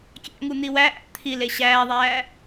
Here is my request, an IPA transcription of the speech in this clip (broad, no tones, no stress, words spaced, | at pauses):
kʲæ̰ŋu n̪iwæʔæ̰ t̪ʰile ɕæːðˤæː